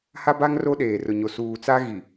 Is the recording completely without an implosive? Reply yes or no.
no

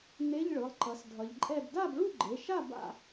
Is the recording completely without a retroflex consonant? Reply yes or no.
no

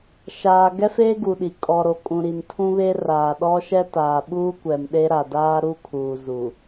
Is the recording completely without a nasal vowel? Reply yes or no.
no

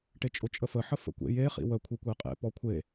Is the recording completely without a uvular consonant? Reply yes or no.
no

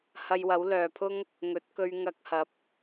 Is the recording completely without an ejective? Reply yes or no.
yes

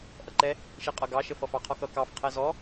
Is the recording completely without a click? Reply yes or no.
no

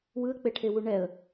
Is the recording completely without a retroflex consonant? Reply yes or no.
no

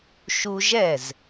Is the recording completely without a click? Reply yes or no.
yes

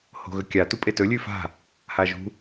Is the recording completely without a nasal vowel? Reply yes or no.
yes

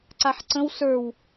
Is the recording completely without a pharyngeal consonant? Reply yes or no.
no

